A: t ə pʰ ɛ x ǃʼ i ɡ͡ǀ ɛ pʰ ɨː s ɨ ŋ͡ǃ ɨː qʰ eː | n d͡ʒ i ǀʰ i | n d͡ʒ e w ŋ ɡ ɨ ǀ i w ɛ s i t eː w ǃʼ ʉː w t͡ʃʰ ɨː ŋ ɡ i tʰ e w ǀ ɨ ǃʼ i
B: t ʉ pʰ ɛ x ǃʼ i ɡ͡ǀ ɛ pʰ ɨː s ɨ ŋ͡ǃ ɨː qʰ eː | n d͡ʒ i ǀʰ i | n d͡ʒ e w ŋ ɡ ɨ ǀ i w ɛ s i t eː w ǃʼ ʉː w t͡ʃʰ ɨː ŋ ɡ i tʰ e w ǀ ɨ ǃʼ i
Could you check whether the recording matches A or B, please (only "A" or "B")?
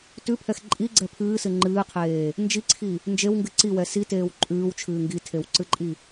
B